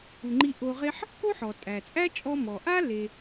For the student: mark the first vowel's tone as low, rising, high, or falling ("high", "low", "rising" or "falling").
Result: low